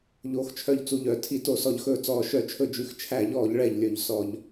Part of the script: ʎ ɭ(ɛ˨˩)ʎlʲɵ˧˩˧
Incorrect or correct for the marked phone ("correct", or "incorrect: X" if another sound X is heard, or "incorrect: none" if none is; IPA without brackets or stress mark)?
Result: correct